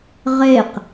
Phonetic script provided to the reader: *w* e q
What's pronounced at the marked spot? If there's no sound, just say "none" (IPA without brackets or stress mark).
ʁ